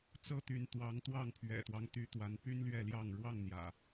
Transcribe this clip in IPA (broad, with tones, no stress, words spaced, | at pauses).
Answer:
t͡sɤ˥˨t̪y˨˦n t̪wɑ˨˦ŋt̪wɑ˥˨ŋ pʰɥɛ̰˨˩t̪wɑ˦ŋt̪y˨˦ t̪wa˨˦npy˦nlɥɛ˥˨ljɑ˥˨ŋ ɻwɑ˥˨ŋn̪jä̰˨˩